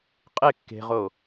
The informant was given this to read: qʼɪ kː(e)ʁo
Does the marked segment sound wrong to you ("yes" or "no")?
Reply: yes